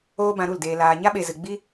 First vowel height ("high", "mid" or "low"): mid